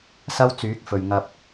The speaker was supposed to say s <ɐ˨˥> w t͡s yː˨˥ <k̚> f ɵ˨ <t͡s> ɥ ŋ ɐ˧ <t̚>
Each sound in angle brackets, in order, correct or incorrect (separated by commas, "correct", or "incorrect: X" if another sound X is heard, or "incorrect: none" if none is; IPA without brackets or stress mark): incorrect: ɐ˥, correct, incorrect: none, incorrect: p̚